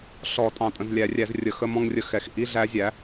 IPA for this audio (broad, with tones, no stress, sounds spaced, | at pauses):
ɬ ɔ˨˩˦ tʼ ɑ̃˨ tʼ ə̃˨ z lʲ æ˨˩˦ rʲ æ˨˩˦ z rʲ ə˨˩˦ x ə˧˥˧ m ɔ̃˥˧ ŋ rʲ ə˧˥ x ɛ˨˩˦ x ʔ i˧˥˧ ɮ æ˧˥ zʲ æ˩˥